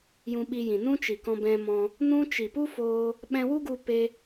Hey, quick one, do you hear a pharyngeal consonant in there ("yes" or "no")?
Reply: no